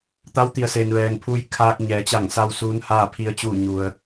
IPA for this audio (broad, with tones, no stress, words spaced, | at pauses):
t̪a˧˥wt̪i˩ə̯se˩n ʋɛː˩ŋpʰu˧j kʰaː˧k̚ ɲɛː˩˧t͡ɕa˧˩ŋsa˧w suː˧˥nhaː˥˨pʰi˧˥ə̯t͡ɕuː˥˨ ɲu˧ə̯